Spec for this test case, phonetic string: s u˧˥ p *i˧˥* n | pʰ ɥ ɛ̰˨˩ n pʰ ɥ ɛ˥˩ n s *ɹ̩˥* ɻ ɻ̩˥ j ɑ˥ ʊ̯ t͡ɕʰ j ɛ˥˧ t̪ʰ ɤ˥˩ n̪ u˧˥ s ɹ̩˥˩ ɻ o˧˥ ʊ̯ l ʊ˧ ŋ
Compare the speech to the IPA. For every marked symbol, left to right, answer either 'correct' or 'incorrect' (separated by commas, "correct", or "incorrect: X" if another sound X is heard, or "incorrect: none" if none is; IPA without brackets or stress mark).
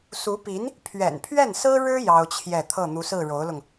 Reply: correct, correct